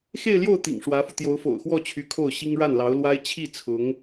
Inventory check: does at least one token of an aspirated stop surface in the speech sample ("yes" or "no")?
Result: yes